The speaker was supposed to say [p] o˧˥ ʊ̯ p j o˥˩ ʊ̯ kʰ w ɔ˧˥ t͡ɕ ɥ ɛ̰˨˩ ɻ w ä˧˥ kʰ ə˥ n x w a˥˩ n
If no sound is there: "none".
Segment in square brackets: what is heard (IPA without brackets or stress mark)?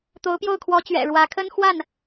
t̪